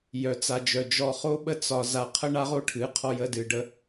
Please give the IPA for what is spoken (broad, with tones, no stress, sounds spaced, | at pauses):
j œ˨ t͡s a˨ d͡ʒ œ˨ d͡ʒ ɔ˨ χ o˧ ɓ ə˧ t͡s ɒ˨ z a˨ qʰ ə˧ ɳ a˦ ʁ o˦ ʈʰ ɨ˨˦ qʰ ɔ˧ j ə˦˨ d ɨ˨ ɖ ə˧